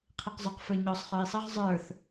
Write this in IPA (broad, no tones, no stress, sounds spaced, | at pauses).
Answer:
qʰ i q zˤ ʊ q f ə˞ ɲ ɔ sˤ χ ə˞ i̯ sˤ ʌ ʁ zˤ ə˞ θ